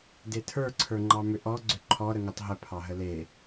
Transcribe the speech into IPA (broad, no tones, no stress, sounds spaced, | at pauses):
d e tʰ ə˞ ǀʰ ə˞ ŋ͡ǃ ɑ m ʏ ʔ ɔ ɡ͡ǀ ʏ ǃʰ ɔ ɾ ə ŋ ə tˤ ɦ ə pʰ ɑ ɦ ə l e